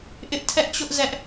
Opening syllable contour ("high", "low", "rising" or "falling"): high